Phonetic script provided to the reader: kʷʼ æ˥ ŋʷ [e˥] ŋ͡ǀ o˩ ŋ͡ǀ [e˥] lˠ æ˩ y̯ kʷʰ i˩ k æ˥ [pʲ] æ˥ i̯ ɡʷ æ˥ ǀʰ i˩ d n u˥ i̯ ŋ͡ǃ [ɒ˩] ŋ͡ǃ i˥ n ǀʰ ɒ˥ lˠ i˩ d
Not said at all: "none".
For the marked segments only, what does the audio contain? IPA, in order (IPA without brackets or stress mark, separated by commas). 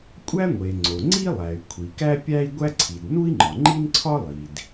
e˩, i˥, pʲ, ɒ˩